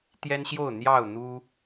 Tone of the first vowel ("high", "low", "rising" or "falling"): high